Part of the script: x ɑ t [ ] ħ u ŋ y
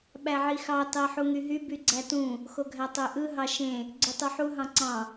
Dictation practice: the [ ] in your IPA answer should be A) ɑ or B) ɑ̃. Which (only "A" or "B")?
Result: A